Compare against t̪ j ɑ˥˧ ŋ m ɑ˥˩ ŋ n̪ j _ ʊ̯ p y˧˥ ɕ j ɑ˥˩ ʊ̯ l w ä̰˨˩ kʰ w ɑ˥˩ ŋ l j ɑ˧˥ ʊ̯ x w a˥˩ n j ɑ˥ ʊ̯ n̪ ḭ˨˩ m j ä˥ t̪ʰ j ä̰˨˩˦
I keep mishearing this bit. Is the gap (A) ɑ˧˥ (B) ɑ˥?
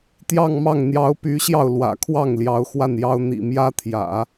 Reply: A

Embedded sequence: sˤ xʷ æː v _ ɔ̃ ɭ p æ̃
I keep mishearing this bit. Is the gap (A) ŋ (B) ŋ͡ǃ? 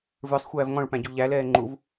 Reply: A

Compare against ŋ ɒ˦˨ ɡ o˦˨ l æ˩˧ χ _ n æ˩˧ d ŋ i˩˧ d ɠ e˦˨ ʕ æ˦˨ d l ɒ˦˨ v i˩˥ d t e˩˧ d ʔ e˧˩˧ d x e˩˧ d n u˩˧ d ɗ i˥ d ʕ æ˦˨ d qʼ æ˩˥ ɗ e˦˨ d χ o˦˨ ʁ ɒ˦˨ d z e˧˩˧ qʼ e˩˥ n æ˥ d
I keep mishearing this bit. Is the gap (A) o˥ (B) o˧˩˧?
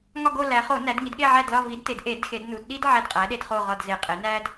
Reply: B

